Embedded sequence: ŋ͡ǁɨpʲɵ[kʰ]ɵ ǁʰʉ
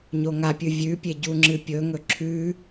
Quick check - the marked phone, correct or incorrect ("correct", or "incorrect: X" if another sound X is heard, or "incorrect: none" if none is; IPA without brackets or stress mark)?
incorrect: ŋ